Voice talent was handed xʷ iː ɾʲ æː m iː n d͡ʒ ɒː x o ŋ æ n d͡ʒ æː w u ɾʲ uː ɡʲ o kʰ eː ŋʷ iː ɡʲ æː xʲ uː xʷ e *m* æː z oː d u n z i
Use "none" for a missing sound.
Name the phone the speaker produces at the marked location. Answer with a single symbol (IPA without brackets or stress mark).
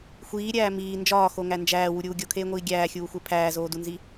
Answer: pʰ